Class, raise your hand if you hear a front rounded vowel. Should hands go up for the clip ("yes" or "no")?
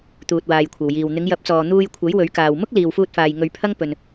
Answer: no